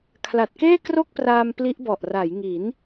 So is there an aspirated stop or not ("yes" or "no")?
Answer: yes